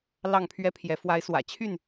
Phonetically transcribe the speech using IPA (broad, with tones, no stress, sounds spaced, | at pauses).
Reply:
l ɑ˥˨ ŋ pʰ ɥ ɛ˦ pʰ j ɛ˨˦ f w a˨˦ ɪ̯ s w ä̰˨˩ t͡ɕʰ y˥˨ n